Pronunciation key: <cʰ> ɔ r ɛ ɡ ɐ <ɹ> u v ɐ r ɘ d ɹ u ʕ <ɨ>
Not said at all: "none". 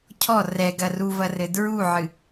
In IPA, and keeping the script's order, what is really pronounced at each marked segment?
cʰ, r, ɨ

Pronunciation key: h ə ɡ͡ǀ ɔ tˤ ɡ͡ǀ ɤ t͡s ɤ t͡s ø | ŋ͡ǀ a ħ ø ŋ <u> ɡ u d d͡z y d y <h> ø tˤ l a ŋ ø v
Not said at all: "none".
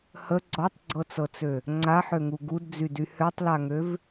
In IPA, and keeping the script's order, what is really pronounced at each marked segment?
u, h

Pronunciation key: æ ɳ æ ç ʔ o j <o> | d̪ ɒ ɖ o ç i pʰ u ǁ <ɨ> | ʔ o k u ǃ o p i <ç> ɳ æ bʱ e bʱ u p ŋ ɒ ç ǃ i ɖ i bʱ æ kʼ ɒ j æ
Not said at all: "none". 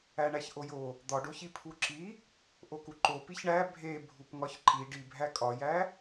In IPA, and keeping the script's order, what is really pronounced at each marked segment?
o, i, ç

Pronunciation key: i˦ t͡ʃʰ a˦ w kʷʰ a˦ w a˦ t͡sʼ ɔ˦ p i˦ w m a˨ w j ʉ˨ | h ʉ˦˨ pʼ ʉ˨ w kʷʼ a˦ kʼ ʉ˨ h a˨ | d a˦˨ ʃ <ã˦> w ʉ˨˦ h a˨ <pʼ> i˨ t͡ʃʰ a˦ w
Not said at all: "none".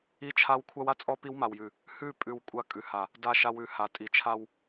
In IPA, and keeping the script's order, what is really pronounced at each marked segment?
a˦, tʼ

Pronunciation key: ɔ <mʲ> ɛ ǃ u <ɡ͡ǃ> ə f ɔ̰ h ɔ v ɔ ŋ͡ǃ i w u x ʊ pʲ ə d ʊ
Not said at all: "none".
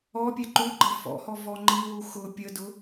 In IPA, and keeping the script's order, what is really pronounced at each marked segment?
pʲ, ɡ͡ǃ

